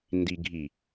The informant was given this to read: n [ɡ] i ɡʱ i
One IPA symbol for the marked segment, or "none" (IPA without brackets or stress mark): d